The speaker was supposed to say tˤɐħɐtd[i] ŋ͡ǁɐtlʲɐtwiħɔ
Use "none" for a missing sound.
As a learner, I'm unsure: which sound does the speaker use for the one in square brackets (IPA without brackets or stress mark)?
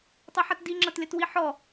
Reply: i